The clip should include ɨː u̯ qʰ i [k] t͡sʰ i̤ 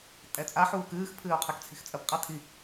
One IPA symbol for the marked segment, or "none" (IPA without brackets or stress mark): k